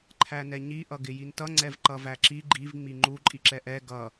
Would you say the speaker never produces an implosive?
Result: yes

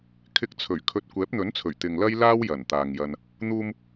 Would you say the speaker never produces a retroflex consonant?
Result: yes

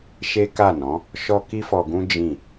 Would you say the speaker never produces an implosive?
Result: yes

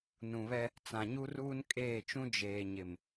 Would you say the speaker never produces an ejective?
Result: no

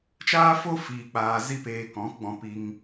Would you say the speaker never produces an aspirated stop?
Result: yes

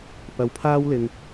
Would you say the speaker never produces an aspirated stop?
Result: no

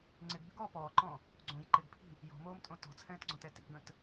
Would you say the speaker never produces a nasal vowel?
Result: no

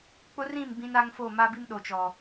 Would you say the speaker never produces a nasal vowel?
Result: no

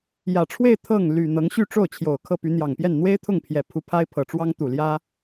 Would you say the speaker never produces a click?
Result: yes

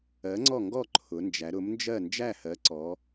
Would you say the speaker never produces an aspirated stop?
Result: no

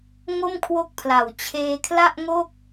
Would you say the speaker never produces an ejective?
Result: yes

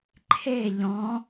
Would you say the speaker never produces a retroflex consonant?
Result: yes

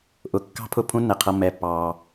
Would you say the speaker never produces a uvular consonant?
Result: no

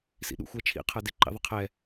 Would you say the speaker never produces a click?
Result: no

